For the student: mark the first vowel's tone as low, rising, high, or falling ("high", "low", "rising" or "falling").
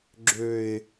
low